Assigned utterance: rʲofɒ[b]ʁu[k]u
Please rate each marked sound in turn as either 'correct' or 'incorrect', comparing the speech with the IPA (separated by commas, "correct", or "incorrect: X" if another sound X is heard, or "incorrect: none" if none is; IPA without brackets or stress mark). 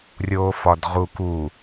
incorrect: d, correct